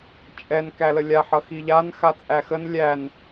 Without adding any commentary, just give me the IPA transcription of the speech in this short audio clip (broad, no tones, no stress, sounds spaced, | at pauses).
t͡ʃʼ ɛ n k æ l ə lʲ a ħ ʌ x i ʎ a n x a t͡sʼ æ x ə n lʲ æ n